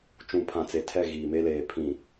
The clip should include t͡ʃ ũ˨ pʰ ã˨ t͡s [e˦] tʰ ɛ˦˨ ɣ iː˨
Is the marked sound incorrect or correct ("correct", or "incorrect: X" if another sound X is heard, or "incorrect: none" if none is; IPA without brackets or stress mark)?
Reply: incorrect: e˨